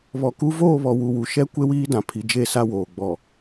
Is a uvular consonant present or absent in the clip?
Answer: absent